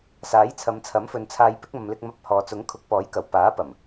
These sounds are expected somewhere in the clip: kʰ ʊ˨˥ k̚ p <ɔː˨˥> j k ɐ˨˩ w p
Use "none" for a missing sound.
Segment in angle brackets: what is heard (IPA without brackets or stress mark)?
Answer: ɔː˨˥